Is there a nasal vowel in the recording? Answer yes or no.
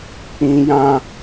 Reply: yes